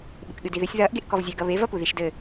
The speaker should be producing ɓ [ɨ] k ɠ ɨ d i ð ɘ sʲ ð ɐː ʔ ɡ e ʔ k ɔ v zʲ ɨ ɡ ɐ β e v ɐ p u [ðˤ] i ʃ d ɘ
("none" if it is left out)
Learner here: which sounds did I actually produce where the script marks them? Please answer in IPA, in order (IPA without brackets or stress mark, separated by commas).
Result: ɨ, ð